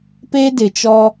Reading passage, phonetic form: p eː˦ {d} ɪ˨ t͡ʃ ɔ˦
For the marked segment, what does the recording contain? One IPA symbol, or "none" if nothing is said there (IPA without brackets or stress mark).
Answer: d